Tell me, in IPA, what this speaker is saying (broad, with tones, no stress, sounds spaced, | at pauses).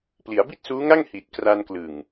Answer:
p l i˩˦ a̯ b i˥˩ t̚ s uː˦˥ ŋ a˥˩ ŋ h i˨˩ t̚ k r a˧ n k l ɯ˨˩ ŋ